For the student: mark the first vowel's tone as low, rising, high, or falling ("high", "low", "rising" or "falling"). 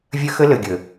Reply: high